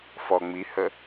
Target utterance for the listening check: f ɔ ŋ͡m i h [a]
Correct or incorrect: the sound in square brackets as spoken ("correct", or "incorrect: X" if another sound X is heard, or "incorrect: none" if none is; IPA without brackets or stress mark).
incorrect: ə